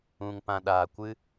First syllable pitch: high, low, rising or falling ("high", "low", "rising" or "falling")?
low